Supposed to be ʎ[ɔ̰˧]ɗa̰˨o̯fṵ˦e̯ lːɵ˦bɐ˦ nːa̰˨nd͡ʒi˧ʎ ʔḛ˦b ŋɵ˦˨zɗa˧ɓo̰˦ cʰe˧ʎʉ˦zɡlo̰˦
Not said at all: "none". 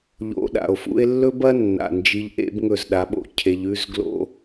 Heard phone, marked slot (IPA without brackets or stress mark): o̰˧